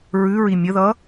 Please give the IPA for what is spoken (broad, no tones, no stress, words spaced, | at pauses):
ɹʉɹi mʲəðʌ